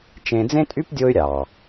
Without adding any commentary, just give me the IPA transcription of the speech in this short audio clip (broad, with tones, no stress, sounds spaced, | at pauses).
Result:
t͡ʃ ẽ˧ d͡z ẽ˦ tʼ y˦ p dʲ o˧ y̯ ɾʲ ɑ˨